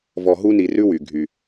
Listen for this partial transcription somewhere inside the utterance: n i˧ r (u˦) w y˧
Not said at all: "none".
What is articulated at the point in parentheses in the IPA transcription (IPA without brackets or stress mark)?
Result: ʉ˦